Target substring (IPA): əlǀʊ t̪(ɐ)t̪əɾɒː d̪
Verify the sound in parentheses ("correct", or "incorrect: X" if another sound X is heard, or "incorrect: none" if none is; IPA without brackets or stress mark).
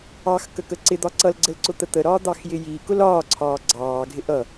incorrect: ə